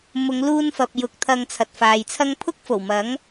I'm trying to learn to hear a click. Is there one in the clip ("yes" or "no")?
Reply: no